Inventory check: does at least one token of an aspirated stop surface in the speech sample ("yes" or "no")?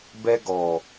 no